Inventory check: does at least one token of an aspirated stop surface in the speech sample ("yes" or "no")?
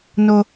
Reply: no